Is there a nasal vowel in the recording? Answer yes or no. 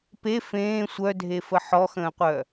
yes